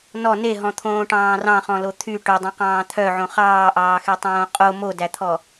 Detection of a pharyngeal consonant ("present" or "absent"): present